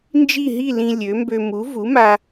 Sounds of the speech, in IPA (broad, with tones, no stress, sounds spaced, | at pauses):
n d͡ʒ i˥˨ ɦ i˥˨ l ĩ˧ lʲ ø˩˥ m b ø˧ m u˩˥ v u˩˥ m a˧